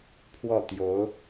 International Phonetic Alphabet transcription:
pʰwɔ˥˩ t̪jo˧˥ʊ̯

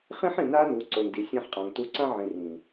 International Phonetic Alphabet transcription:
χĩ˦ħĩ˨na˦ nu˨˦ǀo˨ndi˨ sʲã˦ħqʼã˨ŋtu˦ ǀã˦ʕĩ˨ rĩ˨

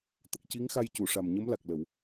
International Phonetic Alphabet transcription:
t̪ə˨˩k̚ci˧˥ŋxa˧jcu˨˩˨ ʂa˨˩mɲə˧˥mla˨˩k̚lə˨˩˨w

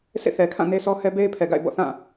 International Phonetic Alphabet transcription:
sḛ˦˨θɛ˨kʰã˦˨ ne˦sɔ˦hɛ˦ be˦ɪ̯pʰɛ˨ɡa̰˦˨ɪ̯ bɔ̰˦˨θã˦˨

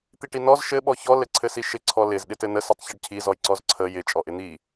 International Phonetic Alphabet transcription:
t̪iʈinɔz ʃɘ ɓɔçɔ lɘǀʰɘsiʃɪ ǀʰɔlɪz ɗɪtɘnə sɪtˤçɘɖcʰi zɔjǀɔzǀʰə jɪ t͡ʃʼɔʔɪn̪i

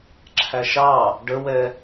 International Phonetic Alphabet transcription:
ǁʰæʃɑ | ɖəwɛ

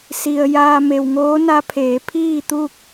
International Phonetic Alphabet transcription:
si˩ə̯ jaː˧ me˩wŋoː˧˥na˧˥pʰeː˩˧ pʰiː˥˨t̪u˥˨k̚

